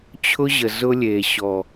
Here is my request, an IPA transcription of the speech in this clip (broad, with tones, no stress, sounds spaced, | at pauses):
t͡ɕʰ ʊ˦ ʑ ə˨ z ʊ˦ lʲ e˨ ɕ ɔ˨